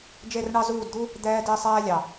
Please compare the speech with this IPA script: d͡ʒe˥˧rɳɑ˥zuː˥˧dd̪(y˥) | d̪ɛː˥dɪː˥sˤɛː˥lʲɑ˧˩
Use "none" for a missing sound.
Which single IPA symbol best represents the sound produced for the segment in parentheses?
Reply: u˥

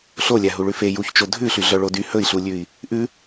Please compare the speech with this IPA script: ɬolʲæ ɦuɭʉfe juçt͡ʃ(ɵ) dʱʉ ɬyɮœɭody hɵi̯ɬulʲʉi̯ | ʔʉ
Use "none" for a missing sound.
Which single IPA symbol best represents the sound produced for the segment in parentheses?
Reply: o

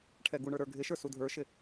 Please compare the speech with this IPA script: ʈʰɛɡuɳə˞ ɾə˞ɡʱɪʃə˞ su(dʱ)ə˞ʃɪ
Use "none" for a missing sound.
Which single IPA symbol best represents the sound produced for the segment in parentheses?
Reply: dʱ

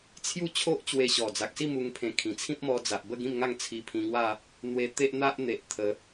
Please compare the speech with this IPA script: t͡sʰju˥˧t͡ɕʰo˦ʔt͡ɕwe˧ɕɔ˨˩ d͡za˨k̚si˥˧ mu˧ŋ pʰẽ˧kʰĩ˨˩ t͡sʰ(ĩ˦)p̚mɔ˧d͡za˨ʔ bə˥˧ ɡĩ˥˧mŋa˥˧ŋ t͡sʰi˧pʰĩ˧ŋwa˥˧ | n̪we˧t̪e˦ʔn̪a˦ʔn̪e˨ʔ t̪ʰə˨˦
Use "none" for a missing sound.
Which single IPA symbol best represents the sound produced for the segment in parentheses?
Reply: ĩ˦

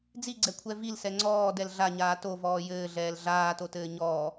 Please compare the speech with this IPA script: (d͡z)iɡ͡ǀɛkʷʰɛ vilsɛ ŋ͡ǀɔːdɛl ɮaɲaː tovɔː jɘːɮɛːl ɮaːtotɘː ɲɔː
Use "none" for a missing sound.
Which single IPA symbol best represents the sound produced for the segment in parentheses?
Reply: d͡z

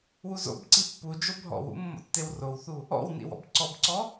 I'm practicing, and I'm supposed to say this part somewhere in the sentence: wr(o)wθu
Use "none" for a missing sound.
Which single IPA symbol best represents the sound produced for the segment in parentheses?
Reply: o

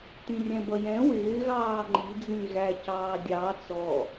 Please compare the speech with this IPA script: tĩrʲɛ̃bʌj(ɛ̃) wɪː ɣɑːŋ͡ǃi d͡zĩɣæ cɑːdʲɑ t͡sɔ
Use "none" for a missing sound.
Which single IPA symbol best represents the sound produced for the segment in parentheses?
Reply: ɛ̃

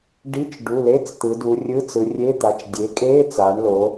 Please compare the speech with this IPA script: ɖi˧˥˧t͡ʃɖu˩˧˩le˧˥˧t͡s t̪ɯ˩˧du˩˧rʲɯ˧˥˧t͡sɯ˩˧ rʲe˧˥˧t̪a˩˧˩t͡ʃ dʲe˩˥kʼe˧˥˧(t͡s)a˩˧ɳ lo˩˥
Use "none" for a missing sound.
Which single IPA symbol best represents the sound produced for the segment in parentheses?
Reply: t͡s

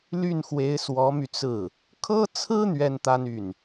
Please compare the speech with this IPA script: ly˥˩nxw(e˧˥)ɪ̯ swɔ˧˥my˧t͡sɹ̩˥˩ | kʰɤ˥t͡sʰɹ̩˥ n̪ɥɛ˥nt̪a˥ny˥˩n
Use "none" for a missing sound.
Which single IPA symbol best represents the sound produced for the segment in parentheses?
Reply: e˧˥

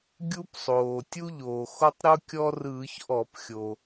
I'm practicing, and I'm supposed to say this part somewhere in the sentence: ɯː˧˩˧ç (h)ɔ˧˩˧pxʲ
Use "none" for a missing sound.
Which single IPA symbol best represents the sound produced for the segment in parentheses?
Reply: ʔ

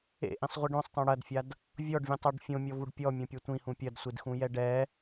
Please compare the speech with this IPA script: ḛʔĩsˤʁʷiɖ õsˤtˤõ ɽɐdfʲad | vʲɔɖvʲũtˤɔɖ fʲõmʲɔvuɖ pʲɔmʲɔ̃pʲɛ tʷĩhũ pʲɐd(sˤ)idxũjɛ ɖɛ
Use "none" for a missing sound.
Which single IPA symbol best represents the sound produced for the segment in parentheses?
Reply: sʷ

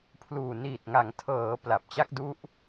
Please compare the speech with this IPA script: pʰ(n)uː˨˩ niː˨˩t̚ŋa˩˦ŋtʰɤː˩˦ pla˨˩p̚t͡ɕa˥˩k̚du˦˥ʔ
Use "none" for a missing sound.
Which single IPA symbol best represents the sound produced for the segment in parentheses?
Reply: l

